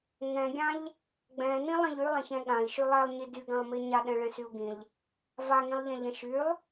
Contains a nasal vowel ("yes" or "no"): yes